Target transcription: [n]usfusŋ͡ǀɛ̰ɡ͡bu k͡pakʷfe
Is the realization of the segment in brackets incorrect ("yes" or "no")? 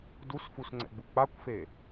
yes